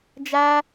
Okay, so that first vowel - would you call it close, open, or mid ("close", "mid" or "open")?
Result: open